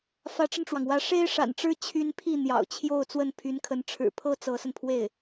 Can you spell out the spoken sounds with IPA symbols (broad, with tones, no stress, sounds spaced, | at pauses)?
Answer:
f ä˧˥ ʈ͡ʂ ə˧ n ʈ͡ʂ w ɑ˩ ŋ w ä˧˥ ʂ e˥ ɪ̯ ʂ a̰˨˩ n ʈ͡ʂ ɻ̩˥ t͡ɕʰ y˥ n pʰ i˥˩ n̪ j ɑ̰˨˩ ʊ̯ t͡ɕʰ j o˥˧ ʊ̯ t͡s w ə˥˩ n pʰ y˧˥ n kʰ ə˧˥ n ʈ͡ʂʰ ɻ̩˨˩ pʰ ɤ˥ t͡s ɤ˧˥ s ə˧ n pʰ w e˥˩ ɪ̯